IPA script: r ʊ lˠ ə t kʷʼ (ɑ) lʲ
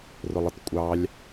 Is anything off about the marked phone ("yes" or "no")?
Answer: no